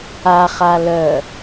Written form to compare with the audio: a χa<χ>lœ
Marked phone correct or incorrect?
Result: incorrect